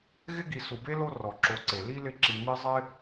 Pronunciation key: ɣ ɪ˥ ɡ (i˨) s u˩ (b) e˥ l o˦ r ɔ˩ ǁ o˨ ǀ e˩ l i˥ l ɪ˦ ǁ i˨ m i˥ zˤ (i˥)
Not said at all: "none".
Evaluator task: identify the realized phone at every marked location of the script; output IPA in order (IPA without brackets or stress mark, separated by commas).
i˨, b, ɪ˥